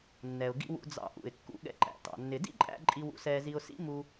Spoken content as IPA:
nː ɛ˩ ʊ̯ ɡ ḭ˧ w ṵ˧ d͡z ɑ̰˧ ʔ ṵ˩ ɪ̯ kː ṵ˧ ɠ ɛ̰˧ ǃ æ̰˩ t ɑ̰˩ nː ɪ˩ d ḭ˥ ǃʼ æ̰˧ ǃʼ i˧ w ṵ˧ s ɛː˧ z i˧ ʊ̯ s ḭ˥ m u˧

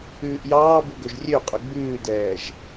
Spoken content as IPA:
ʉː ʔ j ɑː b u ɡ ɵ ʒ rʲ ø qʼ ɵ ɡ͡b ʉː d ɛː ʒ

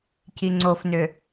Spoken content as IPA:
c i ŋ͡ǀ o f n ʏ

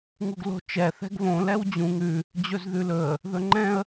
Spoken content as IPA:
ŋ u ɡ l o̤ t͡ʃ ɛ θ ɛ̤ ɡ β õ l ɛ w d͡ʑ ũ ŋ ʉ | d͡ʑ ɵ z ð ʉ l ɵ ə̯ | ð ɵ ŋ͡ǃ ɛ̃ ə̯

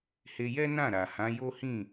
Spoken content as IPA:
h e˧ j ɛ˦ n ã˦˨ ɾ a˨ h ã˨˦ j o˦ h ĩ˦˨

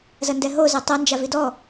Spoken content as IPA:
z ɐ n d ɛ ɦ o z ɛ tˤ ɐ n d͡ʒ a v i d ɔ

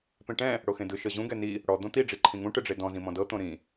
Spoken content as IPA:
p ẽ ʈ ɛ̃ | ɽ o x ẽ d ɯ ʃ ɤ ʑ ũ ɡ ɛ n i | ɽ ɔ d̪ õ t̪ i ɖ͡ʐ i ǃʰ ĩ ŋ ũ ʈ ɯ ɖ͡ʐ e d ɔ̃ z ĩ m ɔ̃ d ɤ t̪ õ ɾ ĩ

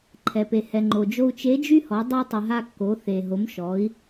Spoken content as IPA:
ǃʰ ɛ˩ p e˩ h ɛ˩ ŋ͡ǃ o˩ d͡ʒ o˧ u̯ t͡ʃ e˧˥ d͡ʒ y˥ h ɔ˩˧ dˤ ɛ˧ tˤ ɨ˩ ɦ a˧ kː o˩˧ θ e˩ ɦ o˩˧ m ʃ ɔ˩˧ i̯

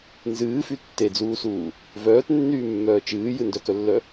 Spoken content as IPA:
n z ɨː f y tː e d͡z uː s uː | v œː t nː yː mː œː t͡ʃ ɨː j ɨ n d œ k œ lː œ

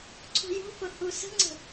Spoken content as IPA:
ǀʰ ṳ j ṳ f ʊ h u s ə̤ ŋ͡ǀ ə̤

